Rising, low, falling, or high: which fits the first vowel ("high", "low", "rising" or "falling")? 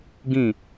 falling